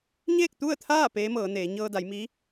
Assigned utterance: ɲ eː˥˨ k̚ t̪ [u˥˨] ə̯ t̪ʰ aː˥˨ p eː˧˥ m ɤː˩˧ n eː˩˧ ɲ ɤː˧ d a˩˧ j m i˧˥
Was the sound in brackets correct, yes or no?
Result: yes